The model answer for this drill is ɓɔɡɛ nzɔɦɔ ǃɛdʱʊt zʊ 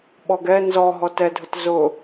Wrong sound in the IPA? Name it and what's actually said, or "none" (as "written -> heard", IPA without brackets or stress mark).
ǃ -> t